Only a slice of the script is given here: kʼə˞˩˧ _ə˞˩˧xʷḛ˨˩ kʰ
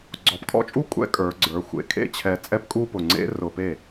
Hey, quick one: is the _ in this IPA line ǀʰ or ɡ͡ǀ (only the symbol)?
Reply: ɡ͡ǀ